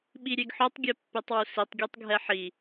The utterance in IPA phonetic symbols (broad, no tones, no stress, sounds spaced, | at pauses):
ɓ i ɾʲ e ɡ ħ o tˤ ɡʲ ɛ pː e tˤ w u s i tˤ ɡʲ e tˤ ɡʱ ɛ ħ i